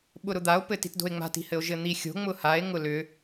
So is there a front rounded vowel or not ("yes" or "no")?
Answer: yes